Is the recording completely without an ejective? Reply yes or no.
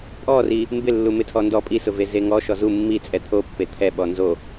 no